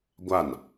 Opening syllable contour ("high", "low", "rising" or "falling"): falling